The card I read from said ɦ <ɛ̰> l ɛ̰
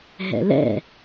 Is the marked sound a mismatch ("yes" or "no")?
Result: no